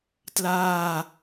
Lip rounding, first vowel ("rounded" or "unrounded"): unrounded